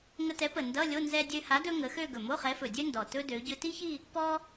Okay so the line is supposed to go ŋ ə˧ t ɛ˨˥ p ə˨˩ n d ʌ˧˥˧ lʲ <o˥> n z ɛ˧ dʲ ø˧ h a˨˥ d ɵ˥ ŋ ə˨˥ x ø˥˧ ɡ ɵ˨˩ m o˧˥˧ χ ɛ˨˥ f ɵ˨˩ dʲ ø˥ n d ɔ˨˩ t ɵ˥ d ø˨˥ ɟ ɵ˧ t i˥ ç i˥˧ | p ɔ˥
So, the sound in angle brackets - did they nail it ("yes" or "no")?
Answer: no